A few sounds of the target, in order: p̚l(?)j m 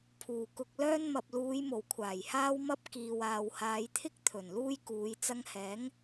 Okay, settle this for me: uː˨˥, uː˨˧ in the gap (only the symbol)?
uː˨˧